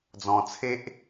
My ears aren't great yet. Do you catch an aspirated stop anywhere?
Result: yes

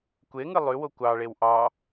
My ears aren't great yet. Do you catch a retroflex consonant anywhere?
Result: yes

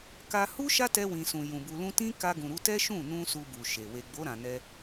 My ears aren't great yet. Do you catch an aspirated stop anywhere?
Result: no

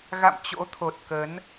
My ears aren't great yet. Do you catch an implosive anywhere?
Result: no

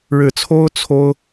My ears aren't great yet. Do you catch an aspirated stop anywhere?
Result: yes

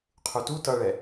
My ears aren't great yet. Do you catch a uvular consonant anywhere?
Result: yes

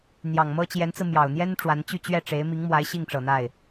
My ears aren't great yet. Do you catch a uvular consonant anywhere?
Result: no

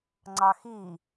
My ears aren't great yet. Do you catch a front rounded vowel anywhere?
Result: no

